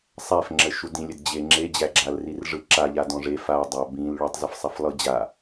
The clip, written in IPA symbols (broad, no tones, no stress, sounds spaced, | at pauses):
sˤ æ f ŋ͡ǁ ə ʃ u d ĩ lʲ ə d d͡ʑ e ŋ͡ǁ e d͡ʑ æ ɡ͡ǁ a l r i r ʐ ɯ ǁ a ʎ a d ɔ̃ ʐ e f a dˤ a b ĩ l ɭ u tˤ z ɯ f sˤ a f lˠ ɯ d͡ʑ a